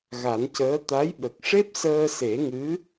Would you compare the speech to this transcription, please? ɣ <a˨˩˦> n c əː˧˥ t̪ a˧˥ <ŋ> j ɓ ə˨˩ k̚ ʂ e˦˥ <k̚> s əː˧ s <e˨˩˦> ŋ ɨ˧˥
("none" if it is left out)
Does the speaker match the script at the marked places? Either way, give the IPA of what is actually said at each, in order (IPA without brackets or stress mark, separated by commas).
a˨˩˦, none, p̚, e˨˩˦